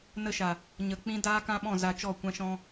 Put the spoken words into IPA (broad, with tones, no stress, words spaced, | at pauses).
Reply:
nə˦ʃa˨ | ɲə˨ k͡pĩ˦daː˦kã˦ɓɔ̃˦˨ za˧t͡ʃɔ˦˨ kʷã˦ʃɔ̃˦